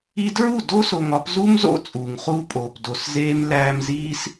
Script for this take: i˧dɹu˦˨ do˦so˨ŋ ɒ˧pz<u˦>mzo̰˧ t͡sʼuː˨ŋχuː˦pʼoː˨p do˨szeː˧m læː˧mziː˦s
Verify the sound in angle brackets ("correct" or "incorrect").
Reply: correct